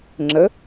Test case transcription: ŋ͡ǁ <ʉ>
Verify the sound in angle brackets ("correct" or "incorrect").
incorrect